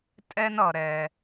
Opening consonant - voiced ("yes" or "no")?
no